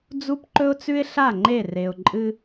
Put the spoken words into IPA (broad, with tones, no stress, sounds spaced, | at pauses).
d͡z u˦ p ǃ ɵ˦ ʊ̯ t͡s ʉ˦ ɪ̯ ɬ a˦˨ ŋ͡ǃ e˦˨ r e˨ ʊ̯ ǃʼ ɨ˦